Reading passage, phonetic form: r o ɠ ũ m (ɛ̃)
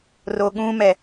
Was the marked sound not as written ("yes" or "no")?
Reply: yes